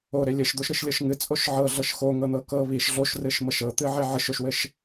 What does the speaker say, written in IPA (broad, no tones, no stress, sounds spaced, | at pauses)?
o ɾ e lʲ ɘ ʃ d̪ o ʃ ɾ ɨ ʃ lʲ ɤ ʃ ŋ ɨ t͡sʼ o ʃ ʕ ɤ ɮ ɤ ʃ x o ŋ ɤ n̪ ɤ k ɤ β i ʃ ɮ o ʃ r ɨ ʃ m ɤ ʃ ɤ t̪ ɨ ʕ e ʕ ɨ ʃ o ʃ w ɘ ʃ